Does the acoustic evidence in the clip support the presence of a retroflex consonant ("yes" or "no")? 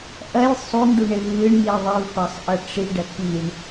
yes